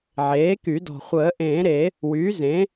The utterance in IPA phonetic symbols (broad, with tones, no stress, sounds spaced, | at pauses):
ʕ eː˩˥ k y˨˩˦ d ɔ̤˨˩ χʷ əː˨˩˦ ʔ ẽː˨˩˦ ɾ e˨˩˦ | w yː˩˥ z ẽ˩˥